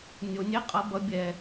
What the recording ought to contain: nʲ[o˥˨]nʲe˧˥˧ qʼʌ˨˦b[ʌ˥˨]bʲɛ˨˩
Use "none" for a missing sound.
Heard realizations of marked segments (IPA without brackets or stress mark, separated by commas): o˨˩˦, ʌ˨˦